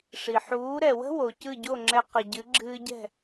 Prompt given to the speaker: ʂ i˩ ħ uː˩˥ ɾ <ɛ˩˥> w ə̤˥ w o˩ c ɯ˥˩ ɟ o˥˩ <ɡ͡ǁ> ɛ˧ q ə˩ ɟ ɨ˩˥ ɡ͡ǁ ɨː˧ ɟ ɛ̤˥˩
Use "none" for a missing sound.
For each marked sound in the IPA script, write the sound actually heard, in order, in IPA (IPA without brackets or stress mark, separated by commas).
ɛ˩, ŋ͡ǁ